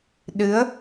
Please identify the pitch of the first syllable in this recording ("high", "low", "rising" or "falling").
rising